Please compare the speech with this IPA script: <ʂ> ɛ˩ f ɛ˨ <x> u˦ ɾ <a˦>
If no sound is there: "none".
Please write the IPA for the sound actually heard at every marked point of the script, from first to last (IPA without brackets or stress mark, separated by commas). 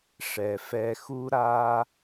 ʂ, x, a˦